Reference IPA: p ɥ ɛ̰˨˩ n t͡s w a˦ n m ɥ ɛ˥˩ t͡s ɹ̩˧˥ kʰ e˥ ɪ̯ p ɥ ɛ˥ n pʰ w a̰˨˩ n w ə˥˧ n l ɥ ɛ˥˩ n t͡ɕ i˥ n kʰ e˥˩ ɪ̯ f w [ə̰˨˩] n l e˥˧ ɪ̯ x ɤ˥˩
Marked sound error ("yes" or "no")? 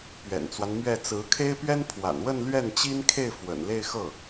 no